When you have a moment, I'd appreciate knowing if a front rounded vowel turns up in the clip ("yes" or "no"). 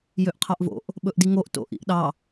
yes